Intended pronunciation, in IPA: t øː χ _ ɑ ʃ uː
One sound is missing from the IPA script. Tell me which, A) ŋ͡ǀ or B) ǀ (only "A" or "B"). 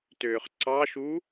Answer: B